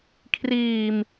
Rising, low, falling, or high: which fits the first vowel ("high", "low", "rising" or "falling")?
low